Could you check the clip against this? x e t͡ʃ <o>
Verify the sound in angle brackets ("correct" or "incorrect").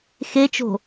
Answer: incorrect